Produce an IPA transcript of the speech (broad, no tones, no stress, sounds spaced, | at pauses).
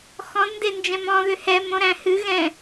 x ɔ̃ d n d e n d͡ʒ ɛ̃ m ɔ̃ ð ʏ h ɛ m õ ɾ æ̃ h ɨ ɣ ɛ̃